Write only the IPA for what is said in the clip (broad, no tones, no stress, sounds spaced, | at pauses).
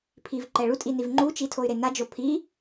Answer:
pʰ i v ǃ ɛ ɭ u tʼ i n i v ŋ͡ǃ u t͡ʃ i tʰ o y̯ ɾ e n a d͡ʒ o pʰ i